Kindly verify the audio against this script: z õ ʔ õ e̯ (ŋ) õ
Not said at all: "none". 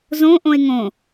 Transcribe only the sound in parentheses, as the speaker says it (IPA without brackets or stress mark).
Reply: ŋ